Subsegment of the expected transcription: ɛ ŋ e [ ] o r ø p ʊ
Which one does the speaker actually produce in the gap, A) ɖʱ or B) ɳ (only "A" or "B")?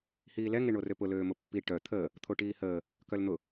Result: B